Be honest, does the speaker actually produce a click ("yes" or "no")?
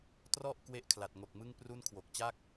no